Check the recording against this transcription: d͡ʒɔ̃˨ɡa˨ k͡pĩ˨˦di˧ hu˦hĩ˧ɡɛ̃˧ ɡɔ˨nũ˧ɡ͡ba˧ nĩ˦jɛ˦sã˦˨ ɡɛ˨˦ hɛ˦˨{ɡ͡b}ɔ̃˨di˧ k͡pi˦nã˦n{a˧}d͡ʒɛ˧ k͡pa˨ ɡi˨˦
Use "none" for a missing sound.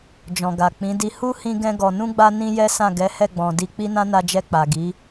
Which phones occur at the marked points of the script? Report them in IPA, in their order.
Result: ɡ͡b, a˧

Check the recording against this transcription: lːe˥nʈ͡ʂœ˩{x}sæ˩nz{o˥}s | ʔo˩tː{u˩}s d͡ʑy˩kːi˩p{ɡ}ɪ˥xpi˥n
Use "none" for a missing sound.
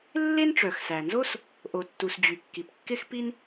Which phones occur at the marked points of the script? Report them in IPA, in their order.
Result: x, o˥, u˩, kː

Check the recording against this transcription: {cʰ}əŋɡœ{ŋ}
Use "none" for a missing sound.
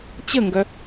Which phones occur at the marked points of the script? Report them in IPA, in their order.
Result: t͡ɕ, none

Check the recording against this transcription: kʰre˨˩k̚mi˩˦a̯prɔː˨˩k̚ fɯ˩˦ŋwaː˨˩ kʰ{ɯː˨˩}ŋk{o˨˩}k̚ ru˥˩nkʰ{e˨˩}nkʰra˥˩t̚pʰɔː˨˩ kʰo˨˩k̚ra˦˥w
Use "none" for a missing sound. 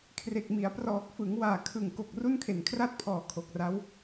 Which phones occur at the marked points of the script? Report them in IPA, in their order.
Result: ɯ˨˩, o˨˩, e˨˩

